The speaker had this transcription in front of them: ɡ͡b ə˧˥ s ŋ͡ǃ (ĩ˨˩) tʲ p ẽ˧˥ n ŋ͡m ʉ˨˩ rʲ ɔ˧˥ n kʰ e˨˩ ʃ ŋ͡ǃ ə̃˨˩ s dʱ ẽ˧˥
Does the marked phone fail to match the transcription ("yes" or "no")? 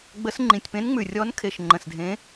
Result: no